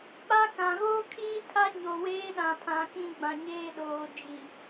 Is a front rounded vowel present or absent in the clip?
absent